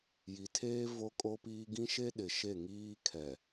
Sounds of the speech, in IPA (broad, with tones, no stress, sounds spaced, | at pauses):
j i˨ tʰ eː˦ v o˦ kʼ o˦ p iː˦ ɡ ĩ˦ ʃ e˦ ɗ ɪ˨ ʃ e˦˨ ŋ iː˦ kʰ ɛ˨